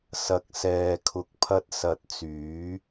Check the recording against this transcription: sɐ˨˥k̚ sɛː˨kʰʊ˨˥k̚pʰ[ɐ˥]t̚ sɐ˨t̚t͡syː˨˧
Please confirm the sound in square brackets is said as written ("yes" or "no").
no